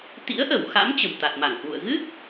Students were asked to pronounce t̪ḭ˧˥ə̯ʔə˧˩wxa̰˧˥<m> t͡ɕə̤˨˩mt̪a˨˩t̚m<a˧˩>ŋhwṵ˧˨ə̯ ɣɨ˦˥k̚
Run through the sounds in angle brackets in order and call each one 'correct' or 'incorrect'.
correct, correct

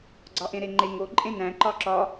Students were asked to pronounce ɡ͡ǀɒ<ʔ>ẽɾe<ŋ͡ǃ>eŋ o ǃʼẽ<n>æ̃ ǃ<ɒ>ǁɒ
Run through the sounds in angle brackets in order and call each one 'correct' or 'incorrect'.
correct, correct, correct, correct

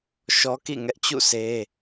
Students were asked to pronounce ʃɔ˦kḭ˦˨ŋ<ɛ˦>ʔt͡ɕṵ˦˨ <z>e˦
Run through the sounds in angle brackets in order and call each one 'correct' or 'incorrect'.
correct, incorrect: s

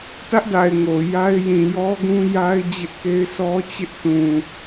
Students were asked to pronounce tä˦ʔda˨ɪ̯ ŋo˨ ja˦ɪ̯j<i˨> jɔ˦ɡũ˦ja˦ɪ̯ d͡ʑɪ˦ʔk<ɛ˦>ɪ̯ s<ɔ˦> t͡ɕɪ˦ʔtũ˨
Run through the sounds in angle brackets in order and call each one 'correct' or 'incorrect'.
incorrect: ĩ˨, incorrect: e˦, correct

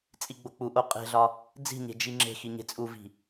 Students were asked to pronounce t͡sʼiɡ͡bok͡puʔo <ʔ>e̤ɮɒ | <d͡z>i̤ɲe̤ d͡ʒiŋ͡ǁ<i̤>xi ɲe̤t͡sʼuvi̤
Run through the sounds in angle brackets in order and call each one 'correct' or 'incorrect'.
incorrect: qʼ, correct, incorrect: e̤

